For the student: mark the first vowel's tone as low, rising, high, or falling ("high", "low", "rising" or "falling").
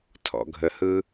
low